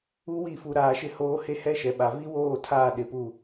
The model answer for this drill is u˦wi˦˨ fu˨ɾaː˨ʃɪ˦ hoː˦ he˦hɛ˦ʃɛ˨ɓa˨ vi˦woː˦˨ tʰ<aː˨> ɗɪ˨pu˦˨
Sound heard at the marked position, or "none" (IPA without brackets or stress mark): aː˦˨